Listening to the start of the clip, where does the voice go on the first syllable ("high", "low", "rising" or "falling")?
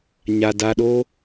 low